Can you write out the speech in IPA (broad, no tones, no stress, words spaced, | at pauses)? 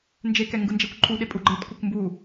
nd͡ʒekɛŋɡɯnd͡ʒɛkʷ ǃʰuɗepʼu ɡ͡ǃetkʷɤkʷmbu